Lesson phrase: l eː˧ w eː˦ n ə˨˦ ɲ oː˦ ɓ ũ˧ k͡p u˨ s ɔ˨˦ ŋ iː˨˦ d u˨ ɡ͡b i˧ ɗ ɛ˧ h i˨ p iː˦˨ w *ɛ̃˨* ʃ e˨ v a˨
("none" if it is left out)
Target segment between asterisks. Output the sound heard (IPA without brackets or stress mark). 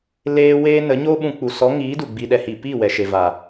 ɛ˨